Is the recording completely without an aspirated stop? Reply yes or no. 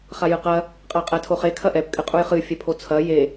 no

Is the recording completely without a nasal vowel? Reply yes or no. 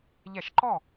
yes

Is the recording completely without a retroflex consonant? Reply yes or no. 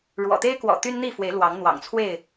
no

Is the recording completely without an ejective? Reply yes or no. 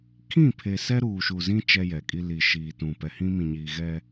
no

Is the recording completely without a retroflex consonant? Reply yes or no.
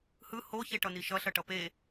no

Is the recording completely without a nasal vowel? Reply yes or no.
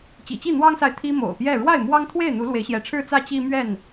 yes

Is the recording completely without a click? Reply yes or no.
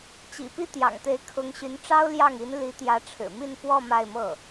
yes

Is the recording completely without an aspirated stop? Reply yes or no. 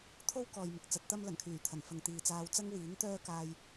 no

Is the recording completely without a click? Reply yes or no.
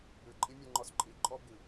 no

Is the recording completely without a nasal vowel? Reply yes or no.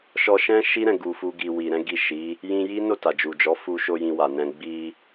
no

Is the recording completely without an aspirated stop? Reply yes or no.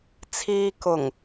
no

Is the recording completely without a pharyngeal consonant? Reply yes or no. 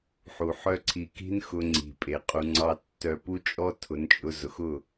no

